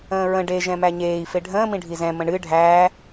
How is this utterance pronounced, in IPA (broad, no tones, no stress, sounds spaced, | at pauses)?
ə̃ː ɹ ə̃ ɖ e ʒ ɛ̃ m æ ɲ eː i̯ f e ɖʱ ə̃ː m ĩ ɖʱ i z ɛ̃ m ə̃ ɳ ɨ ɖʱ æː